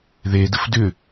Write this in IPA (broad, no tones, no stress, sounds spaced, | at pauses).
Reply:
ð e d ə f d ʏ